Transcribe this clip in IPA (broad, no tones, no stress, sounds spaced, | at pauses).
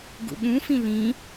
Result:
ɡ ṵ ɠ ũ f ĩ l ĩ